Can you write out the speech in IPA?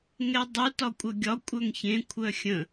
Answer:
ŋ ɛ dˤ u t ɒ kʷʼ œ ɡʲ ɒ kʷʼ œ ŋ ç ẽ kʷʰ œ xʲ ə̃

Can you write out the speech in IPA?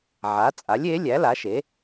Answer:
ʕ a˩˥ t͡sʼ a˩˥ lʲ e˩˥ lʲ æ˩˥ l a˩˥ ʃ e˩˥

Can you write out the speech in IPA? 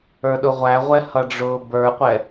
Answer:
ə˞ ɗ ʊ ʁʷ æ ʁʷ ɛ h ʌ ɖ͡ʐ ʊː b ə˞ qʷ ɛ

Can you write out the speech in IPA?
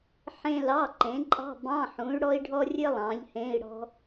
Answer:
ħ ẽ˥ l ɑ˧˥˧ ǃ ẽ˨˥ ǃʼ ɑ̤˧˥˧ b ɑ̃˧˥˧ ħ ũ˨˥ y̯ ɽ ɔ˥ i̯ ɖʱ ɔ˥ rʲ ɘ˥ lˠ ɑ̃˨˥ ʎ h ẽ˧˥˧ i̯ ɽ ɔ̤˥

